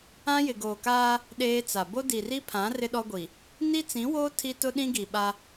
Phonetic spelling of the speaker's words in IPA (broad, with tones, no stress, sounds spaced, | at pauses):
ã˦ j ɪ˨ ɡ oː˨ k aː˦ | ɗ eː˦ t͡s a˨ b o˦ d i˨ r i˦ pʰ ã˨˦ r ɪ˦ ɗ ɔ˦ ɡʷ i˨ | n i˦ t͡s ĩ˨˦ w oː˦ tʰ i˦ t ʊ˦ ɗ ĩ˦ ɡ i˨ ɓ a˦